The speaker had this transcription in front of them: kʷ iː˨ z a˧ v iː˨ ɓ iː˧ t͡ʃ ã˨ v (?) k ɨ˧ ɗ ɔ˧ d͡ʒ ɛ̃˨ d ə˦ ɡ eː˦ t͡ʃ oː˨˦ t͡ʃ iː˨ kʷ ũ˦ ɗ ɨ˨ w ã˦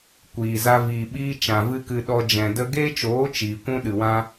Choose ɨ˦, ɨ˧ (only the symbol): ɨ˦